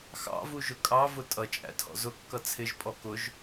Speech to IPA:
x ɑ̰ v u ʒ ʊ kʼ ɑ v ʊ tʼ ʌ t͡ʃʼ æ̰ tʰ ɔ̰ z ʊ kː ʌ t͡sʰ ɪ ʒ pʼ ɔ k ʊ ʒ

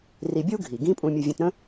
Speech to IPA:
r i˧ bʲ u˥ ɡʱ i˩ ɡ ĩ˥ pʼ ũ˧ mʲ ə˧ vʲ ə̃˧ t ɾ ə̃˥

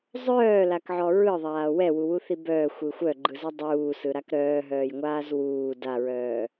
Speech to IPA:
zˤ œː l a k ʕ ɔ ɹ ɯ ðˤ aː w ɛ w u w u θ i b œː xʷ ɯ xʷ œ ɡ͡ǃ ɯ z ɛ dˤ uː s ɯ ɾ a k ɾ œː ɦ œː j ŋʷ aː z w uː d a ɹ œː

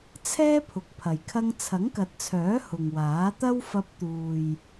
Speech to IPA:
t͡sʰ ɛː˥ pʰ ʊ˨ k̚ pʰ ɐ˨ j kʰ ɐ˧ ŋ t͡sʰ ɐ˨˥ ŋ k ɐ˨ t̚ t͡sʰ œː˨˥ h ʊ˨ ŋ w aː˨˥ t̪ ɐ˥ w f ɐ˧ p̚ t̪ uː˨ j

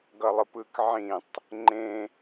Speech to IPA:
ɡ ʌ lˠ ɯ p ɯ k ʕ ĩ tˤ | ŋ͡ǃ ẽ

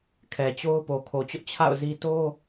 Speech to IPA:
kʰ ɛ˨ t͡ɕ o˦ ʊ̯ p o˨ kʰ o˨ t͡ɕ ʊ˦ ʔ t͡ɕʰ a̰˦˨ ʊ̯ z i˦ t o˦

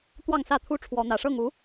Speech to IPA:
t̪ w ɑ˥˨ ŋ s ä˥˨ t̪ʰ u˦ ʈ͡ʂʰ w ɔ˨˦ n̪ ä˨˩ ʂ ɤ˥˨ ŋ u˨˦

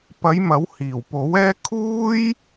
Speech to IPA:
p ɐ˨˧ j m ɐ˨˥ w h iː˨˩ w p o˨˥ w ɛː˥ kʰ uː˥ j

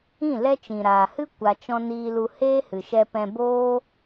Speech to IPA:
ĩ˦˨ l ɛ˦ t͡ʃ ĩ˨ ɾ aː˨ h ɨ˦ kʷ a˧ t͡ʃ ɔ̃˦ n iː˧ l u˧ h eː˦ h ɨ˨ ʃ ɛ˧ p ɛ̃˧ b oː˦

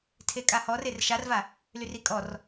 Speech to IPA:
tʰ e kʼ a h ɔ r e r ʃ a r v a | l y r i kʼ ɔ r

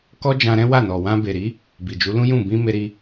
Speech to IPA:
k ɔ˦ d͡ʒ ã˧ ɾ ɛ̃˦ w a˦˨ n ɔ˨ w ã˧ b e˨ ɾ i˨˦ | b i˨ d͡ʒ u˨˦ l ũ˦ j ũ˦˨ b ĩ˧ m e˧ ɾ i˧

